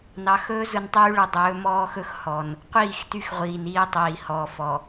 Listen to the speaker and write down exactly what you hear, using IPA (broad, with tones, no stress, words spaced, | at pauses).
nɑ˨xɵː˦ zɯ˨ntˤyː˦ɭɯ˨ dˤɵː˨˦ mɔː˦xɵ˦x hɔ˨n | qʷiː˦˨xty˦xʁʷiː˨n iː˦tˤiː˨ hɔː˨fɔ˨